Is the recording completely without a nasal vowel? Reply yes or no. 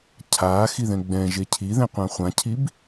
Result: no